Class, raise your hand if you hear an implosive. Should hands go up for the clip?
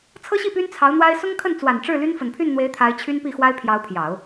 no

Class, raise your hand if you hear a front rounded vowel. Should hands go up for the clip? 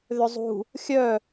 yes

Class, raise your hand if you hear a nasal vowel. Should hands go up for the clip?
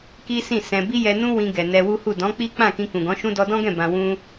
yes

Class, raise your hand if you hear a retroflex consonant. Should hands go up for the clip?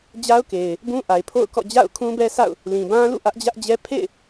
no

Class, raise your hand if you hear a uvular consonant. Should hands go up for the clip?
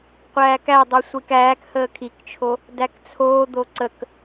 yes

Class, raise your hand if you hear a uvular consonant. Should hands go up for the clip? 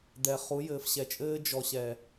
yes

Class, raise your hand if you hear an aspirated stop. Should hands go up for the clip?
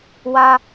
no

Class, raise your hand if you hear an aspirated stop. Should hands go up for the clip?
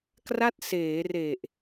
no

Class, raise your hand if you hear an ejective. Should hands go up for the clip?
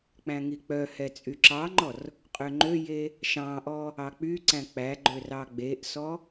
yes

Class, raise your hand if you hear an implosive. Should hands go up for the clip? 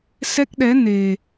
yes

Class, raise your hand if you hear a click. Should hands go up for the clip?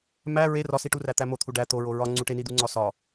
yes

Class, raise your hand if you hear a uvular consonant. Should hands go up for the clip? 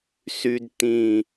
no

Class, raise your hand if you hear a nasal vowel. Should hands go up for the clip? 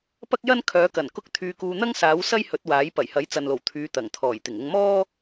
no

